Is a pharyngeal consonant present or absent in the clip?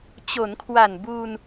absent